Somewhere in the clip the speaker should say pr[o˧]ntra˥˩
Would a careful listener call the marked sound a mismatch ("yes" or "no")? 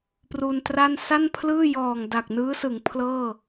yes